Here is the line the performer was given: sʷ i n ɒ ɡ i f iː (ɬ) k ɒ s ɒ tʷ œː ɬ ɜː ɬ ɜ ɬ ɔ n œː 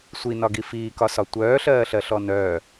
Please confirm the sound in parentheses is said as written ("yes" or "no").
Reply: no